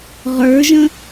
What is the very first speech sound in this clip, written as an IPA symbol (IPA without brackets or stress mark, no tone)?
ʁ